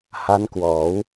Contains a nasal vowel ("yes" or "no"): no